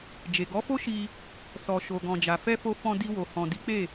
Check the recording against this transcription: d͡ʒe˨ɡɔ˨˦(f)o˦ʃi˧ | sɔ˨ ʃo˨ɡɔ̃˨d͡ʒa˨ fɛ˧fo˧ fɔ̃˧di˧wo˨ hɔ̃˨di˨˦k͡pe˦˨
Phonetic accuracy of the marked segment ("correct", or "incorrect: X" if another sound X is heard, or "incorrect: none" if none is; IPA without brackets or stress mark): correct